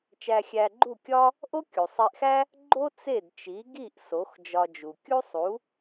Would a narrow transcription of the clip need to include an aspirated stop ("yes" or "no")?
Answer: no